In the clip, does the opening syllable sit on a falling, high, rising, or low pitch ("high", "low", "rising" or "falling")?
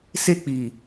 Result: high